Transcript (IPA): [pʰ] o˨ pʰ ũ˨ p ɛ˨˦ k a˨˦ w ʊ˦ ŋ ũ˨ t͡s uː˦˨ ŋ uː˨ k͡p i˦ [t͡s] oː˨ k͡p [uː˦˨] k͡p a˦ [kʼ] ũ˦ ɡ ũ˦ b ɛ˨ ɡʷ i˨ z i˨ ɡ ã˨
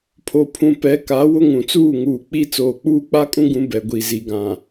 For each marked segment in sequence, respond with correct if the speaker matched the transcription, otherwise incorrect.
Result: correct, correct, incorrect: uː˦, correct

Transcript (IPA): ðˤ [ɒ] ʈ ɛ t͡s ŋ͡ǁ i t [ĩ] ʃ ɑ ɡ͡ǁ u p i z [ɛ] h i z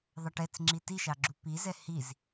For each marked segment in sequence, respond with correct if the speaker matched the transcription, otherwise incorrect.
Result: incorrect: ɑ, incorrect: i, correct

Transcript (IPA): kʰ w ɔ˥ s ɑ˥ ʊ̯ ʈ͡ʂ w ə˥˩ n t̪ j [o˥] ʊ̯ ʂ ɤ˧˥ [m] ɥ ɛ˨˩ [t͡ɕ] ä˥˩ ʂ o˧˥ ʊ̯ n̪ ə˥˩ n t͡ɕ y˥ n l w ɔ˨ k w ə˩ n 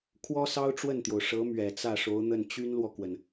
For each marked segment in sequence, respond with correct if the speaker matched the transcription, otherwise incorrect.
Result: incorrect: o˩, correct, incorrect: t͡s

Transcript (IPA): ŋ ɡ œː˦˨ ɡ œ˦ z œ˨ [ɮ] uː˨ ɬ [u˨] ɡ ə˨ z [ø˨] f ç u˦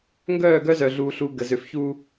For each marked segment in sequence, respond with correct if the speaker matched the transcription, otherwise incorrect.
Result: correct, correct, correct

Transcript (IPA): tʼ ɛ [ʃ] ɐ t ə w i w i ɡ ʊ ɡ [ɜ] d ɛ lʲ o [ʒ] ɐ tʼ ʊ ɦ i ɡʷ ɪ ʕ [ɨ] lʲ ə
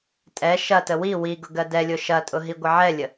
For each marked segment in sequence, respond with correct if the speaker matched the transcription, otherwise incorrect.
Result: correct, correct, incorrect: ʃ, incorrect: ɛ

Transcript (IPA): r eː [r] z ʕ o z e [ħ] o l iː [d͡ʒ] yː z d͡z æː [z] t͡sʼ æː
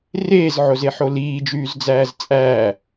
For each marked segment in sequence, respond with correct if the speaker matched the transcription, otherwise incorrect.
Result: incorrect: none, correct, correct, correct

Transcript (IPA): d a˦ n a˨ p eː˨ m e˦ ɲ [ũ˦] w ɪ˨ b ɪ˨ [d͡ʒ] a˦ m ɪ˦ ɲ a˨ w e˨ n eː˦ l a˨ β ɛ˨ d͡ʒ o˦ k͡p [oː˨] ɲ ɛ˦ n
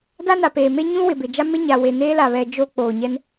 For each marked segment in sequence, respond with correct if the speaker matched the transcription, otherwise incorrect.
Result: correct, correct, correct

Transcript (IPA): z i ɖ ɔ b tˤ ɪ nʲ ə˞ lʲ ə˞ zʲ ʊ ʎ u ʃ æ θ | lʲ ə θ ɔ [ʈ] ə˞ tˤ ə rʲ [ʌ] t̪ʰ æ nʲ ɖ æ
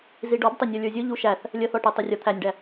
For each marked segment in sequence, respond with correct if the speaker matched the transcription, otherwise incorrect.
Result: correct, correct

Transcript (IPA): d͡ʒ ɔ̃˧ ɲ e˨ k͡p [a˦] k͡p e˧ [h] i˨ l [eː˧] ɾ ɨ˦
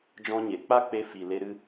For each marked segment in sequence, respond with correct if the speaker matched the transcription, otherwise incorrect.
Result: correct, incorrect: f, incorrect: e˧

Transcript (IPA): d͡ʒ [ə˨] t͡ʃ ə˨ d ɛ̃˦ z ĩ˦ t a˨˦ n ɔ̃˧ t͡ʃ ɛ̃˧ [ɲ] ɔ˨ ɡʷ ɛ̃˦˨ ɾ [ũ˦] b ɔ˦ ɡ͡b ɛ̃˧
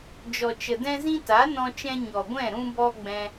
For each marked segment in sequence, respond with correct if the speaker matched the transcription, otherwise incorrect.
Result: incorrect: ɔ˨, correct, correct

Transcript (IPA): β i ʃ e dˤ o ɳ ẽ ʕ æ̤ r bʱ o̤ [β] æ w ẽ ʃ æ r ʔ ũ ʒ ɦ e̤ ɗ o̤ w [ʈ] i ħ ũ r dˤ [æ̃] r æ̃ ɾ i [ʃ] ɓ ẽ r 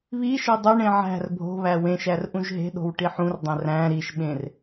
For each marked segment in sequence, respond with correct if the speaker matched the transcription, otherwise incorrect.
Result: correct, correct, correct, correct

